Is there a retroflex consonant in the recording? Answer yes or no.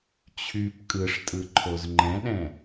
yes